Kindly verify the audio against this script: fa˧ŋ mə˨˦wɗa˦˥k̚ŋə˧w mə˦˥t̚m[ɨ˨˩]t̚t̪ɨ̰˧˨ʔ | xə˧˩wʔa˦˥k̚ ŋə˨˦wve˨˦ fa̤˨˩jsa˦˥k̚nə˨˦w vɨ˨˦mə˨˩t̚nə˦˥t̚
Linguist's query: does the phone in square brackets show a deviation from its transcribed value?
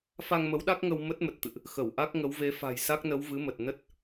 yes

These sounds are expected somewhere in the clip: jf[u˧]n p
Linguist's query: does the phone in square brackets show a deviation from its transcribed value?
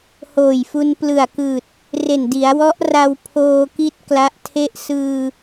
no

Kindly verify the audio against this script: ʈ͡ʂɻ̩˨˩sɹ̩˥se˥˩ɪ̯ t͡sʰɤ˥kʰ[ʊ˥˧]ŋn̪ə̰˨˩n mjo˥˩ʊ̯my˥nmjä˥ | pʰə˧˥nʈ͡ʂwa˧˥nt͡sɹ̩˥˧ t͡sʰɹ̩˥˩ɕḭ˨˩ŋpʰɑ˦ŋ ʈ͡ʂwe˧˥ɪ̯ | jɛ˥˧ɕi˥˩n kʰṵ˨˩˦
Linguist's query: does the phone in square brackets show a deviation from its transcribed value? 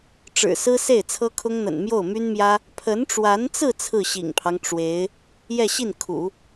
yes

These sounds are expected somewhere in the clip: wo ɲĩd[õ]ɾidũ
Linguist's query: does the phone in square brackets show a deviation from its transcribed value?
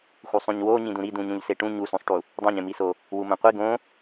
yes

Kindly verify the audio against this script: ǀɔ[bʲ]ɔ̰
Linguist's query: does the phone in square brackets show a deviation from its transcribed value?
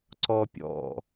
yes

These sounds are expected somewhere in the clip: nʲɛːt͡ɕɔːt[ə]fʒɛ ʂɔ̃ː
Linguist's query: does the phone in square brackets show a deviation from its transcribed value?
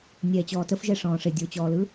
no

